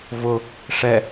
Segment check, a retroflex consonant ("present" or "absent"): present